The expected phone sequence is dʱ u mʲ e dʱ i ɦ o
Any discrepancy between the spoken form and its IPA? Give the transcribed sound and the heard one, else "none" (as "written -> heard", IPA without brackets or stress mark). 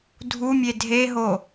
i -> e